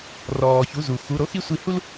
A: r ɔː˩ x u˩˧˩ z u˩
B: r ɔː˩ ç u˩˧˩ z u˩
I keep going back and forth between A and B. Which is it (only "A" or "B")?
B